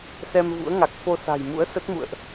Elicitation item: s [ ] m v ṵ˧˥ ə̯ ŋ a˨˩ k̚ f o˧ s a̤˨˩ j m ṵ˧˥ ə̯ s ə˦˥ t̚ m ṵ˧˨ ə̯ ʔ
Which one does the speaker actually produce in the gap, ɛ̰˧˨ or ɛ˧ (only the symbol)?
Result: ɛ˧